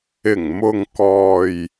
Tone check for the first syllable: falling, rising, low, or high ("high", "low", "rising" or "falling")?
low